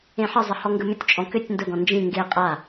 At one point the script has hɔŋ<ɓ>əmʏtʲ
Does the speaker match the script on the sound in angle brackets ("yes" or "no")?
no